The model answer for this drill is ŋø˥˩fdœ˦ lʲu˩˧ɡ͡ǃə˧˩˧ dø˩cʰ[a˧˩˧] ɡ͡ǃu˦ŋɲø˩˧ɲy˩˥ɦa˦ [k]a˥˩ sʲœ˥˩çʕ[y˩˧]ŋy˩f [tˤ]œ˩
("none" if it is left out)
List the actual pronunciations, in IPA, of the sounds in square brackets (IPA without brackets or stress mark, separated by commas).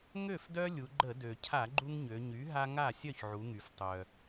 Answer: a˧˩˧, ŋ, u˩˧, tˤ